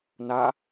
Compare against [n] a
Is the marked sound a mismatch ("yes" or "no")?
no